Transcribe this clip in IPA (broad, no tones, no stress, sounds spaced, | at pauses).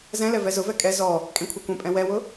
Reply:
z ɛ̃ l ɛ v ɛ z ʊ v ɛ kʼ ɛ z ɔ | kʼ ẽ kʷʰ e kʷ ẽ pʼ ɛ̃ w ɛ w ʊ